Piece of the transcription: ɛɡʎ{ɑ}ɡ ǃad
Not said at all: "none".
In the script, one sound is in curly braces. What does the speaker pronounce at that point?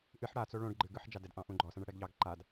ɑ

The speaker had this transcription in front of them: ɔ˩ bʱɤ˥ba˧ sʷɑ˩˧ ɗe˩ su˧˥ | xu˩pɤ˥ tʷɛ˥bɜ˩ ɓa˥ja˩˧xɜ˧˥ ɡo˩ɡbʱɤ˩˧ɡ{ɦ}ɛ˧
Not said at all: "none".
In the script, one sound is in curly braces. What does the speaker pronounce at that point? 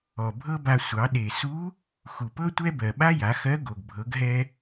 ɦ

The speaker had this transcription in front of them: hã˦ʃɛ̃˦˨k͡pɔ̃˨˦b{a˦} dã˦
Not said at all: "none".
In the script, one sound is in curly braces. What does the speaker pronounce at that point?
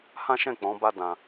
a˦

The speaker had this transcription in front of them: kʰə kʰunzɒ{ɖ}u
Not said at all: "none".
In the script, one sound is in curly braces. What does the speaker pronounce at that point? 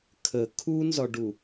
ɖ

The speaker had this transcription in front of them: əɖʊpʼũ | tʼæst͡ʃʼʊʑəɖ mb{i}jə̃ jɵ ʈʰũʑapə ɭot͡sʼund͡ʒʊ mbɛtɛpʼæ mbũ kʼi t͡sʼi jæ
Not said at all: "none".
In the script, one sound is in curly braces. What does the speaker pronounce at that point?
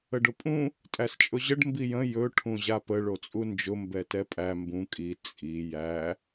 i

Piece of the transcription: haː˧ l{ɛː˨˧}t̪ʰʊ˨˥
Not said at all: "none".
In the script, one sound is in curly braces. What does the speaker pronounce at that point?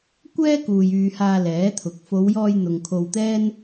ɛː˨˥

